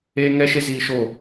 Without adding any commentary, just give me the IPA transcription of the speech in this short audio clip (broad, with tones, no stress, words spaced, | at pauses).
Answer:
eː˧ ŋɛ˦ʃe˦ ziː˧ ʃo˦˨